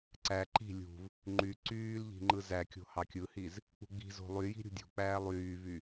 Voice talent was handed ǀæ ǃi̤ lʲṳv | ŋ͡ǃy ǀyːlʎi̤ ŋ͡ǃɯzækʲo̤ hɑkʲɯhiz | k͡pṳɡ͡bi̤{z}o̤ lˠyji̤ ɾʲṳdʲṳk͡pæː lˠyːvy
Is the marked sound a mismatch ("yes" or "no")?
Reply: no